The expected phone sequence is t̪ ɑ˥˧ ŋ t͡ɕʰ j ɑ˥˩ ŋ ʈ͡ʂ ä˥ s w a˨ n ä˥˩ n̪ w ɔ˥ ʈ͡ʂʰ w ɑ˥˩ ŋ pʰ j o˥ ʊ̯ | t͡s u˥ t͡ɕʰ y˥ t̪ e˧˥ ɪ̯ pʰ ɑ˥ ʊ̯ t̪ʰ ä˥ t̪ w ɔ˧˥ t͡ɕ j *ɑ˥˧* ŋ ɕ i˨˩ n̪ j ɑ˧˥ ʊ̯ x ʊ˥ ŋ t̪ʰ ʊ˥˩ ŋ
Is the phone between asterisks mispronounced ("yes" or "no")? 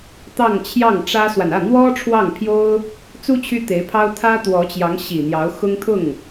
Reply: yes